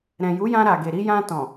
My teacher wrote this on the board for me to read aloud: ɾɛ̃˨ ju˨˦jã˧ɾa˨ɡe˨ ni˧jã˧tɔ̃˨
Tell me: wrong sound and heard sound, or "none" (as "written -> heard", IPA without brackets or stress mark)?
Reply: n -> ɾ